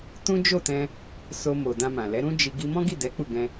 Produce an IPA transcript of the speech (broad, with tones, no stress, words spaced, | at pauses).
tũ˦d͡ʒo˦˨tɛ̃˧ | so˧mo˨ dã˧mã˨lɛ˨˦ ɾũ˦d͡ʒi˧ ɡi˧mɔ̃˦ɡi˦˨dɛ˨˦ k͡pu˦˨ɡɛ̃˧